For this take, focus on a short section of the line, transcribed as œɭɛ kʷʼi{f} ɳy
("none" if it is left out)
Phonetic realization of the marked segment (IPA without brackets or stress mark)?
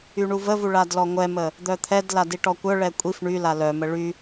f